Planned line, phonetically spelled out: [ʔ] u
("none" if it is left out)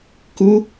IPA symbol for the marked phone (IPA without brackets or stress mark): k